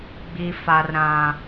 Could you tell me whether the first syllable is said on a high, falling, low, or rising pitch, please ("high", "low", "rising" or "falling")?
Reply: low